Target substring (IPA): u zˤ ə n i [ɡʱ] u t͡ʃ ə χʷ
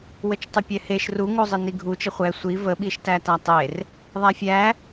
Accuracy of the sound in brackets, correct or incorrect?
correct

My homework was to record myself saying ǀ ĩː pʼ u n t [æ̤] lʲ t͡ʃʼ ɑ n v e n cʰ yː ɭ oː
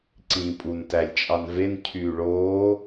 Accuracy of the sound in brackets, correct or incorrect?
incorrect: æ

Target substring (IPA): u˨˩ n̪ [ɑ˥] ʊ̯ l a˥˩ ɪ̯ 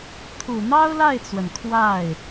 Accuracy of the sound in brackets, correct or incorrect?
correct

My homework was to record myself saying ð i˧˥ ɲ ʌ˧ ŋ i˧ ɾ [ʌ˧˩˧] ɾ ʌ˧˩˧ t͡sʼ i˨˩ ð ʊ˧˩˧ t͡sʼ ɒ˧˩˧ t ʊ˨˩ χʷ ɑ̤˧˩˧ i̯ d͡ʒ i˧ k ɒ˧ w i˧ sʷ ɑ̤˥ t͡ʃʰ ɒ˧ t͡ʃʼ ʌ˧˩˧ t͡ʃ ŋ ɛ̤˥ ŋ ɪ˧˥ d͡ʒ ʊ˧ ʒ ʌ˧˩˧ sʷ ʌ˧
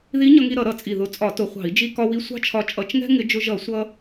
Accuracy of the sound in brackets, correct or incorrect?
correct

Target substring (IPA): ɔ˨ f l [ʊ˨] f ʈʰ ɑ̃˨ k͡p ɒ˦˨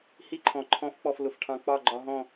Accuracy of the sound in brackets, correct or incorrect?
correct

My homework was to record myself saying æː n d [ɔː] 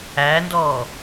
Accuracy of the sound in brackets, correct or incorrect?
correct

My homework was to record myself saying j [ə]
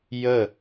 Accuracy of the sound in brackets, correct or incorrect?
correct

